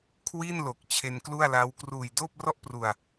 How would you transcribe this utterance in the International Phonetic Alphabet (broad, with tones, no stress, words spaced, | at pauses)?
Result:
kʰwi˥˩nlo˨˩k̚ t͡ɕʰe˧nklu˥˩a̯la˦˥w kruː˨˩jdoː˥˩p̚rɔ˥˩ʔpru˨˩a̯